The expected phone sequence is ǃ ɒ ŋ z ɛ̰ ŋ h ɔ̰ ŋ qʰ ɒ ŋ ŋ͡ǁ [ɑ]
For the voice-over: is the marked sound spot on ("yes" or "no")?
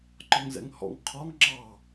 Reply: yes